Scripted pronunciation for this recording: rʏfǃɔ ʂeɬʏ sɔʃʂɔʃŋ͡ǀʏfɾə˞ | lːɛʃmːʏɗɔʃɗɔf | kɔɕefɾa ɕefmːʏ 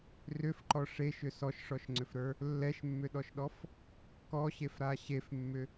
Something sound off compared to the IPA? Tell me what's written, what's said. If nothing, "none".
ɬ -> ʃ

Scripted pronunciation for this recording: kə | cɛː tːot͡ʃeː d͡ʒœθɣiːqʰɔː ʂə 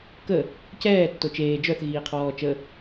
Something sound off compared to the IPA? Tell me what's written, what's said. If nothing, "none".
ʂ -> t͡ʃ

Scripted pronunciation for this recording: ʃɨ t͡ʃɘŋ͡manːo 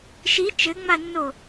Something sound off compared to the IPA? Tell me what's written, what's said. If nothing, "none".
ɨ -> i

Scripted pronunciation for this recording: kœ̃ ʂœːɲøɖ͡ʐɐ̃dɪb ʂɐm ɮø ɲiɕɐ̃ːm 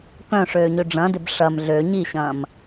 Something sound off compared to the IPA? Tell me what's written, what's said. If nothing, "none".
œː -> øː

